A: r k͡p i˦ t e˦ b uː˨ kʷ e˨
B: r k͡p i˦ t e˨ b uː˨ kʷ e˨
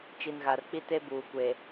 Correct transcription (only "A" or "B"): A